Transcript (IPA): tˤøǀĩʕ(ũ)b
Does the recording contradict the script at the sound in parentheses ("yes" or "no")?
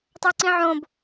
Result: yes